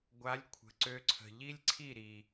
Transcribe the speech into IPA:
ɡʷ a˨˦ lʲ kʷʰ ə̤˨ ǀ ø˧ ǀʰ ə̤˨ ʎ i˦ lʲ ǀʰ i˦˨ ɾ i˨

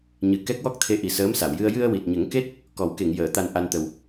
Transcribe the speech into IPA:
ɲ ɨ˨˩ k ɛ˦˥ k̚ w ɔ˦˥ k̚ t̪ʰ e˧ ʔ i˨˩ s əː˧˥ m s a˨˩˨ w j ɨ˧ ə̯ j ɨ˧ ə̯ w i˨˩ t̚ ɲ ə˨˩˦ ŋ k e˦˥ t̚ | k ɔ˨˩˦ w k e˨˩˨ ŋ j əː˨˩˨ t̪ a˨˩ n ʔ a˧ n t̪ ə˨˩ w

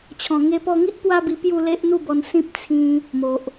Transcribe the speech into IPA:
t͡ɕʰ ɔ̃˨˩ ŋ e˧ p ɔ˧ ŋ i˦ ʔ p w a˦ b i˧ p j u˥˧ l e˦ ʔ n̪ u˥˧ b ɔ˧ n s ĩ˦ p̚ t͡sʰ ĩ˧ | m o˨ ʔ

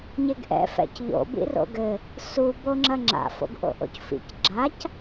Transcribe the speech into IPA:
ɲ e ɡ ʔ ɛ̰ f ɛ̰ c ʎ o̰ b ḭ r o̰ ɡ ɘ | s u b o ŋ͡ǁ ɐ ŋ͡ǁ a̰ f o̰ ɡ ʔ o̰ ʔ o̰ c f ḭ c ɡ͡ǁ a c

